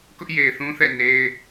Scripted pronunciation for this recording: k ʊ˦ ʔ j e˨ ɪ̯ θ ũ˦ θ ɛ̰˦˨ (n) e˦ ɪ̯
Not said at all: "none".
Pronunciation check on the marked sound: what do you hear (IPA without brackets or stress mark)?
n